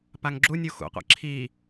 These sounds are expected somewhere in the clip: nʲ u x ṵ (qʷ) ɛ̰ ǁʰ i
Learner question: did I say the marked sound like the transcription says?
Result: yes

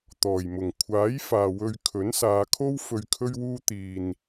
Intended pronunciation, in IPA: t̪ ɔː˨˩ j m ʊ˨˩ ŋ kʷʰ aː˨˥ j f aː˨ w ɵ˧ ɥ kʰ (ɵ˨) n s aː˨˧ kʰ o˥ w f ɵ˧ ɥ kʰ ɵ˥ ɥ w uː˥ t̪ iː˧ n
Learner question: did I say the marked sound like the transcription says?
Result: no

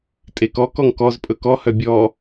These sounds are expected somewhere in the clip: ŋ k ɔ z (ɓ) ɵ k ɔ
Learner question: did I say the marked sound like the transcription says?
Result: no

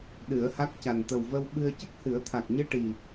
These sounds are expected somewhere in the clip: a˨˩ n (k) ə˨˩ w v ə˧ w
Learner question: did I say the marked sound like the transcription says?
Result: no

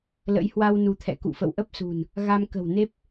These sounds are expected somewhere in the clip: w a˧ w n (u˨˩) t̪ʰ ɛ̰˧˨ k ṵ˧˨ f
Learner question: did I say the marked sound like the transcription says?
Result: no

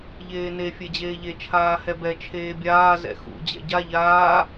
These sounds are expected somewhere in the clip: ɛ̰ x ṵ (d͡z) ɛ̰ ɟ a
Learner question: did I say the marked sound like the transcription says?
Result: no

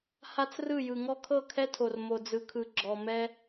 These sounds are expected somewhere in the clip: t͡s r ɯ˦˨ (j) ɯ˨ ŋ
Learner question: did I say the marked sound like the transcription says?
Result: yes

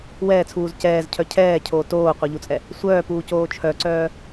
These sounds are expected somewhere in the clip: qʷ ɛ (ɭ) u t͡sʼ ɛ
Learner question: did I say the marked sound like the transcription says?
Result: no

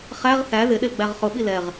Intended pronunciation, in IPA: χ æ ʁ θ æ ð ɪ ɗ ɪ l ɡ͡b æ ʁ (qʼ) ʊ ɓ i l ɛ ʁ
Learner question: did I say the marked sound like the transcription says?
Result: no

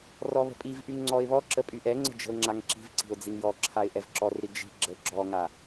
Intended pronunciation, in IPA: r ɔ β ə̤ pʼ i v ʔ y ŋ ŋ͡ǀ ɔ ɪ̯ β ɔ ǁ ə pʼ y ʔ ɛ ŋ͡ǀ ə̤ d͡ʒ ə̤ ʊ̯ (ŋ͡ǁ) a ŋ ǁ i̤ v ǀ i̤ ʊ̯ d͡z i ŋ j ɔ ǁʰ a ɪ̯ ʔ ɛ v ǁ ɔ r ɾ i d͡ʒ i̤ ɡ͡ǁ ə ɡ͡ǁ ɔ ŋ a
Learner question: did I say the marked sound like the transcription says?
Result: yes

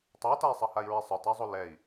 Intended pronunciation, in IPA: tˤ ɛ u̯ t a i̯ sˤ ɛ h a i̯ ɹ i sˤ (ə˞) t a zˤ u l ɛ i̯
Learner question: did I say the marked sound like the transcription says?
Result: yes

